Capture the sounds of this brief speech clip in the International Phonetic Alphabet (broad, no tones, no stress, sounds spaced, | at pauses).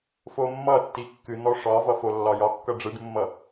f o mː ʌ tː i kː ɨ n̪ ɔ ʂ ɒ v ʌ f o lː ɒ j ɒ kː ʌ ɖ͡ʐ ɨ ɖ mː ʌ